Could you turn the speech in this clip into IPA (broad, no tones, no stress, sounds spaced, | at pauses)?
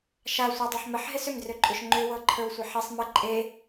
ʃ a sʷ a dˤ ə˞ ħ m ə ħ ɦ ɪ s ʏ m d r ʏ ǃʼ ʏ ʃ ŋ͡ǃ ʏ w ɤ ǃʰ ə˞ w sʷ ə ħ ɪ sˤ m ə ǃʼ e